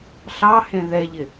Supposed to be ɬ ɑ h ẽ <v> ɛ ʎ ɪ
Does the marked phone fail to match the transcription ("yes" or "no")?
yes